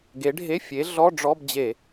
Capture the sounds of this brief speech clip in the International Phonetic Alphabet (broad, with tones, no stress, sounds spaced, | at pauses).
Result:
ɡ e˨˦ ɖʱ e˧˥˧ fʲ e˨˦ ɮ ɔ˧˥˧ ɖ͡ʐ ɔ˧˥˧ b d͡ʑ e˧˩˧